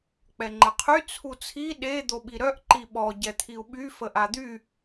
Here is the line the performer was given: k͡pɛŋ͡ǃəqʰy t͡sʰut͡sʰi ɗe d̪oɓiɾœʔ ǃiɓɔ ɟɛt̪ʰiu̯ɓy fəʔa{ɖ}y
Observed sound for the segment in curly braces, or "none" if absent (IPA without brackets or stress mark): d̪